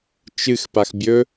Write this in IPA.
t͡ʃ ɨ x p a x bʲ ɵ

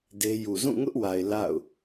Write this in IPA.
d e˦ j u˨ z ũ˦˨ ŋ ʊ˦ ʔ w a˨ ɪ̯ l a̰˦˨ ʊ̯

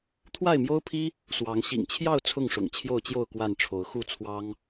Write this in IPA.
t̪ʰ w a˥˨ ɪ̯ m j o˦ ʊ̯ pʰ i˦ | s w ɑ˨˦ ŋ ɕ ḭ˨˩ ŋ t͡ɕʰ j ɑ˥˨ ʊ̯ t͡sʰ ʊ˥˨ ŋ ʂ ʊ̰˨˩ ŋ t͡ɕʰ j o˥˨ ʊ̯ t͡ɕ j o˥˨ ʊ̯ k w a˥˨ n ʈ͡ʂʰ o˨˦ ʊ̯ x u˥˨ t͡sʰ w ɑ˦ ŋ

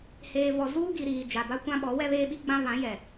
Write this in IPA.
h eː˨ v ɔ˨ z uː˦ ɡ i˨ ɾ iː˨ d͡ʒ a˨ b a˦ kʷ ã˦ ɓ ɔ˨˦ w ɛ˦ β eː˦ ɓ i˦ ɡ͡b ã˦ β ã˨˦ j ɛ˨

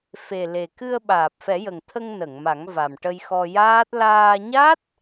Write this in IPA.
f e˨˩ l e˨˩ k ɨ˧ ə̯ ɓ aː˨˩ p̚ f ɛ˨˩˦ j ə˨˩ ŋ t̪ʰ ə˧ ŋ n ə˨˩˨ ŋ m a˨˩˦ ŋ v a˨˩ m ʈ ə˧ j x ɔ˧ j aː˦˥ t̚ l aː˧ ɲ a˦˥ t̚

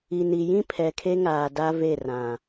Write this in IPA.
i˨ n i˨ j ĩ˦ pʰ ɛ˨ kʰ e˦ ŋ aː˨ d a˦ v e˦˨ r ã˨

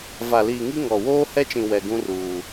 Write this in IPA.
v a˨ l iː˨ ŋ i˦ ŋ ɔ˨ w oː˦ h ɛ˦ t͡ʃ ĩ˨ w ɛ˨ ɡ ũ˦ r uː˨

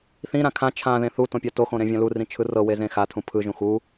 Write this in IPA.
θ ĩ ɾ ã kʰ ã t͡ʃʰ ã ð ẽ θ u t õ pʲ a t o x õ ɾ ẽ vʲ ã l u r ĩ t͡ʃʰ ɯ r ɤ w e z ẽ x a tʰ ũ pʰ ɯ ʒ ũ x u

